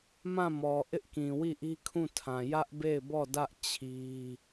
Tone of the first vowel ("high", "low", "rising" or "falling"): falling